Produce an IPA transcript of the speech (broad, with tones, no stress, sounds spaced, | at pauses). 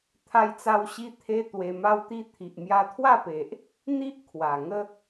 t̪ʰ a˦ j t͡s a˦ w ɕ i˦ t̪ʰ e˦ t̪ w e˧ m a˦ w t̪ i˥˧ t̪ʰ i˨ ʔ m j a˧ t̪ʰ w a˥˧ p e˨ ʔ | n̪ i˦ ʔ kʰ w a˨˩ ŋ ə˦